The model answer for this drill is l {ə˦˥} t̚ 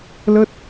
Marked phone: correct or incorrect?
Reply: correct